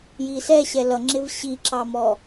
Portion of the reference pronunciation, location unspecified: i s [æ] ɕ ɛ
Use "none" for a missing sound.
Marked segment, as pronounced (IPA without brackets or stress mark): ɛ